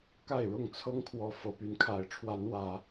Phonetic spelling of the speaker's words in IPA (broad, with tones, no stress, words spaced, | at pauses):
ka˥˨ɪ̯ɻʊ˥˨ŋ t͡sʰɤ˦ŋkʰwɔ˨˦ fɤ˨˦py˨˦n kʰa˨˦ɪ̯ʈ͡ʂʰwa˨˦n wä˨˦